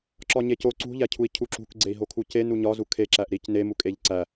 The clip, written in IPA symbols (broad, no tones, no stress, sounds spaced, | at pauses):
ǁ ɒ ɲ e c o ǀ ṳ ʎ æ cʰ u i̯ cʰ u ǁ ṳ k ɡ͡ǀ e i̯ ɦ o kʰ u c e n u ɲ ɒ z u kʰ e ǁ æ ʔ ɾ i c n e m u kʼ e ʎ ǀ æ